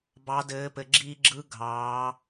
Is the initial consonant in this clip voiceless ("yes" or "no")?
no